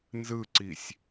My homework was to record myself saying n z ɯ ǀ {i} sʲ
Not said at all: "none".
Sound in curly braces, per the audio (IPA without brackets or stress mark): i